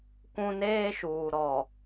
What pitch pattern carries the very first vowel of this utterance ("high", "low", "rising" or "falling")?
high